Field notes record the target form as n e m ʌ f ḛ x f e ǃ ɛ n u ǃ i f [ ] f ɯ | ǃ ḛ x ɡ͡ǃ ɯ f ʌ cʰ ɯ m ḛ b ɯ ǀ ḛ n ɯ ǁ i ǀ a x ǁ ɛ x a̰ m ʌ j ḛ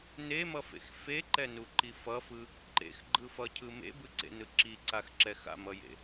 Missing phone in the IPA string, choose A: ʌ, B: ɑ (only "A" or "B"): A